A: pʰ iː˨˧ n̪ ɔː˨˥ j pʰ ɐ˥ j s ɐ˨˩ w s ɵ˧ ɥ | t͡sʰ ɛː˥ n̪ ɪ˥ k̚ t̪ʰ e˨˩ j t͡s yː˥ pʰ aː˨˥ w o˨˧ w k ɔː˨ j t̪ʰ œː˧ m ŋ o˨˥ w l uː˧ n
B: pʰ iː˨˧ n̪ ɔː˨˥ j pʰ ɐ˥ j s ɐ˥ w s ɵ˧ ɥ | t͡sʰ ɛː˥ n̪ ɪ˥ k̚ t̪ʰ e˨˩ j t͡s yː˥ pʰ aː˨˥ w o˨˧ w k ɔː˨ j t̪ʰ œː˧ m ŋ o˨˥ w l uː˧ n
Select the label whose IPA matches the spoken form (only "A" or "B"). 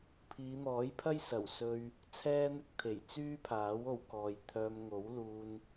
A